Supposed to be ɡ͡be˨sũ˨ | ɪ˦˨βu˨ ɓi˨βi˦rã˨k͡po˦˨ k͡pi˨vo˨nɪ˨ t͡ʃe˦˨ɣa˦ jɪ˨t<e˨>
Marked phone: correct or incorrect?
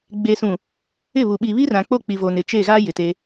incorrect: e˦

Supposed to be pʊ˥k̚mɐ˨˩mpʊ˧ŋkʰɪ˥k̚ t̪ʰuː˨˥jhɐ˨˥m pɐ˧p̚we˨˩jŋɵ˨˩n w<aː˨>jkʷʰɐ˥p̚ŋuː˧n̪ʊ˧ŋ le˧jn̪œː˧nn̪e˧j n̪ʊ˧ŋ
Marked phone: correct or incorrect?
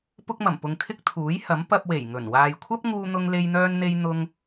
correct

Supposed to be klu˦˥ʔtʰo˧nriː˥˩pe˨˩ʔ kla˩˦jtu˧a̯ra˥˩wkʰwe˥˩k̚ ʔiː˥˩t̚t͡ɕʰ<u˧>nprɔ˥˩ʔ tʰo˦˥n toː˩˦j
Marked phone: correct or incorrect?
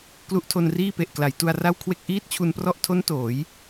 correct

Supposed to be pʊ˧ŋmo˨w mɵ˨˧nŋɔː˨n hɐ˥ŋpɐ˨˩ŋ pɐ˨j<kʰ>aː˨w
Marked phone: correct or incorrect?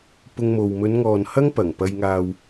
incorrect: ŋ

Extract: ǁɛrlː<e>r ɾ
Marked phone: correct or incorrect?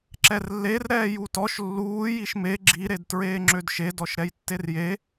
correct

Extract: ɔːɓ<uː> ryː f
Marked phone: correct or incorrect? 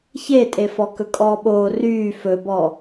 incorrect: oː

